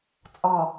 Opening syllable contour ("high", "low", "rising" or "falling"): low